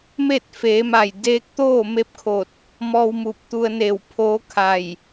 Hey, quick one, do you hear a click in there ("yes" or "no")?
no